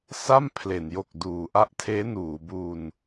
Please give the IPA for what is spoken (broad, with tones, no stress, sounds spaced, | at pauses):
s a˥˩ m pʰ l e˩˦ n j o˨˩ k̚ d uː˩˦ ʔ a˦˥ ʔ tʰ eː˦˥ n uː˩˦ b u˧ n